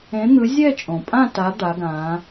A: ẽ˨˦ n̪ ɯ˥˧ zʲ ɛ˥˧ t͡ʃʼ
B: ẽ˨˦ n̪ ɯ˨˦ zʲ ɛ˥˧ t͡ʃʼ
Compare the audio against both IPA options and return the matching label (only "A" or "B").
B